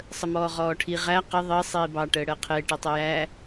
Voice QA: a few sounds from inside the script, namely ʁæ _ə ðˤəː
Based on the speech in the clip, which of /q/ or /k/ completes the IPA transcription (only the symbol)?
q